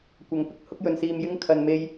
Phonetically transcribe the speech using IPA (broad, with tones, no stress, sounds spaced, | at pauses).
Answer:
kʷ ɐ˨˥ ŋ p ɪ˨ k̚ h ʊ˥ k̚ j ɵ˨˧ n s iː˧ m j ɪ˥ ŋ kʰ ɐ˨ n m e˧ j